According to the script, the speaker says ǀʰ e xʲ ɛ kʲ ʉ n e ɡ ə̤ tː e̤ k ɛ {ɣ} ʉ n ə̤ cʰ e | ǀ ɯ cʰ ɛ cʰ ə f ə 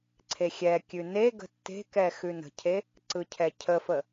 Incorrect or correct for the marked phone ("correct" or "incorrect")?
incorrect